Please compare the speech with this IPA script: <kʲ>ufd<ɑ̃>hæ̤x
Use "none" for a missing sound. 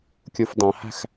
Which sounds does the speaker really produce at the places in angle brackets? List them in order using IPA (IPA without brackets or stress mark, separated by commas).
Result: kʲ, ɑ̃